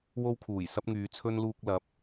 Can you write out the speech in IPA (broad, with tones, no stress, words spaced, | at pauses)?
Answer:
wo˥wkʰuː˨˩j sɐ˥p̚ŋyː˨˧t͡sʰɵ˥n luː˧k̚lɐ˨˥p̚